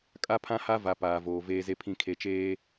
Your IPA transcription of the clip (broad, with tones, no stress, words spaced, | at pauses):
kʼa˦pʰã˦ha˦ va˨˦paː˨voː˨ veː˨ze˨pʰĩ˨ kʰe˨t͡ʃeː˦